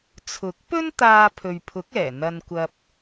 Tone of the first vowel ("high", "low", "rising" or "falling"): rising